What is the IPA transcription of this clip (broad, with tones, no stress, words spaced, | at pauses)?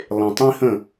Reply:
lˠẽ˨tˤĩ˦hə̃˦˨